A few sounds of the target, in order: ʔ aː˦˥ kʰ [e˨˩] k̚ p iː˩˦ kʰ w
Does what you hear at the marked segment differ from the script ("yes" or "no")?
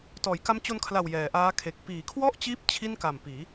no